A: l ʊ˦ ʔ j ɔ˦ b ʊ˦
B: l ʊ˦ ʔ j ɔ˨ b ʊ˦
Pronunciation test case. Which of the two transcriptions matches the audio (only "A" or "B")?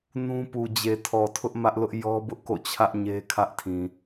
A